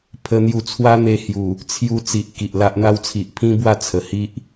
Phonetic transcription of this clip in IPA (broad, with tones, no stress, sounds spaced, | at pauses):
pʰ ə˧ n̪ j u˧ t͡sʰ w a˦ n̪ e˧ h j u˨˩ | t͡sʰ j u˧ t͡s i˨ ʔ k i˨ ʔ l a˦ ʔ n̪ a˦ w t͡sʰ i˨ ʔ pʰ ĩ˦ b w a˥˧ t͡sʰ ə˨˩ h i˦ ʔ